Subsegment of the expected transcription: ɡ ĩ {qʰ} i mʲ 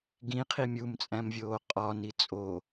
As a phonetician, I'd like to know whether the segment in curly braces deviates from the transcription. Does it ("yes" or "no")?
no